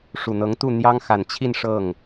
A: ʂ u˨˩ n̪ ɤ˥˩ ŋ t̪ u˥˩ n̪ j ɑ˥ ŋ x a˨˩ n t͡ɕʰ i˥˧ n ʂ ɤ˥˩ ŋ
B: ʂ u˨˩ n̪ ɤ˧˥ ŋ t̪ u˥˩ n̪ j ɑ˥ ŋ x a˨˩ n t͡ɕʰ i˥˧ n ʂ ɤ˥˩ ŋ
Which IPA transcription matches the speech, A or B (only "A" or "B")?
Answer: B